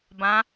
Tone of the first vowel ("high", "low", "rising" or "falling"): rising